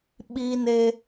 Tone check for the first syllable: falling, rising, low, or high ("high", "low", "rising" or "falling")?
high